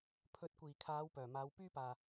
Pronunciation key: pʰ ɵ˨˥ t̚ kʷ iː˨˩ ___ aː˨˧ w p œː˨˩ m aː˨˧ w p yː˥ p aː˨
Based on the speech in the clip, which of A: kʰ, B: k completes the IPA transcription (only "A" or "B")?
A